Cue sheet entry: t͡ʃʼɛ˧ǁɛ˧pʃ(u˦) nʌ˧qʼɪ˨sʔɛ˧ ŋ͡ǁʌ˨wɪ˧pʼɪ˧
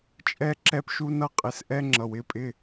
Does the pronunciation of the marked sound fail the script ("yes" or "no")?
yes